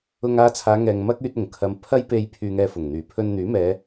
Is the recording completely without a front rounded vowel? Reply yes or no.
no